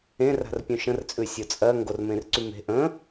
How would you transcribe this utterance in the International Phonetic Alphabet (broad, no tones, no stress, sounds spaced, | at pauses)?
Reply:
ẽ r a̤ r pʲ ũ ʃ ə̃ r t͡sʼ ʉ sʲ o t͡sʼ ɜ ŋ ɡ o r m ẽ r ǀ y m e̤ ʔ ə̃